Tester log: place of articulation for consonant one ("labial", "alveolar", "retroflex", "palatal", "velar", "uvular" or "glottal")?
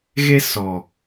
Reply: velar